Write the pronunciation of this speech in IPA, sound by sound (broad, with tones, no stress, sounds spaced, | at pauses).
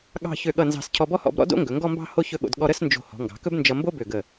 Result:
ɠ ɑ̤˥˧ ç ø˧˩ ɠ ʌ˧˩ n z ɑ̤˧˩ s cʰ ɔ˧ b ɔ˥ h ɔ̰˥˧ b ɾ ɔ̰˥ d o̰˥ ŋ ɡ ɵ˩˧ ŋ ɡ ɔ˥˧ m b ɑ̤˥˧ h o˥ ç ɵ˥˧ ɠ o̰˧ d ɠ ɔ˧ ɾ ə˥˧ s n d͡ʒ o̤˧˩ h ɔ̤˩˧ ŋ ɡ ɑ̤˩˧ k ɵ˥ b n d͡ʒ ʌ˧ m b o˥ b ø˧˩ ɡ ə˧˩